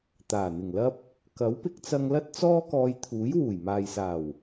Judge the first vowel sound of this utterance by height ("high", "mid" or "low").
low